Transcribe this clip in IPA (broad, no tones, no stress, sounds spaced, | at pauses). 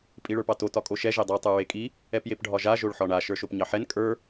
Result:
pʼ i ɭ ə˞ p ɑ t o t ɒ kʼ o ʃ ɛ ʒ e dˤ ɑ tˤ ə˞ ɹ e kʼ i | ɛ p j e p ɖʱ ɒ ʒ a ʒ o ɭ ħ ɒ ɳ a ʃ ə˞ ʃ o p ɲ ɑ ħ ɛ n kʼ ə˞